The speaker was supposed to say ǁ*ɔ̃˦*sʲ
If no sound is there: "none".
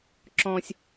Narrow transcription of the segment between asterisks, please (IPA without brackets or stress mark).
ɔ̃˦